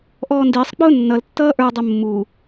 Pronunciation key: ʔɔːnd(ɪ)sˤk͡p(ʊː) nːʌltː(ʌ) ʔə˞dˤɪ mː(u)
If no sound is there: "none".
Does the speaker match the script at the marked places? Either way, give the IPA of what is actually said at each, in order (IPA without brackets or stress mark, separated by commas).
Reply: ɪː, ʊː, ʌː, u